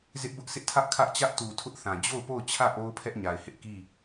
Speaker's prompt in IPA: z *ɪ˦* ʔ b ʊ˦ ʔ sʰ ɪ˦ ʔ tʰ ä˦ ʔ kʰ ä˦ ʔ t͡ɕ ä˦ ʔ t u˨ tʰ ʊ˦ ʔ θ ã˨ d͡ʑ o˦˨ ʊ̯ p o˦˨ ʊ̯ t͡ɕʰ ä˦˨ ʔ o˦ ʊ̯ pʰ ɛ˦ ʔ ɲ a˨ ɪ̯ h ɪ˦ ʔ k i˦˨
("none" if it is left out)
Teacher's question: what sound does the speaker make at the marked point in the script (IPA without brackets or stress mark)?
ɪ˦